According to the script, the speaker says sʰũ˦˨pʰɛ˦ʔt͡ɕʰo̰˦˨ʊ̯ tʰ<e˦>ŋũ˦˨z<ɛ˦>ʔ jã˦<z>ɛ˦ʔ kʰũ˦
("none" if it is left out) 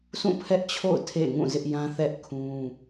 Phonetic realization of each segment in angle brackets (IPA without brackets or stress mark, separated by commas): ḛ˦˨, ɪ˦, θ